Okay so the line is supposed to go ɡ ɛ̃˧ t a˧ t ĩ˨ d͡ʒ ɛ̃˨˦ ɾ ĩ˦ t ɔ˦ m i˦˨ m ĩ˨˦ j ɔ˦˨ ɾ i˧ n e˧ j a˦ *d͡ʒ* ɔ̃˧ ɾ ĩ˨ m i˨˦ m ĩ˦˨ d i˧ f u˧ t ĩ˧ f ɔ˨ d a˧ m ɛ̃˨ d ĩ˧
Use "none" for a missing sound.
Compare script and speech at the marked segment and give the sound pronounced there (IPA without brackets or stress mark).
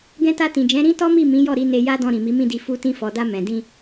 d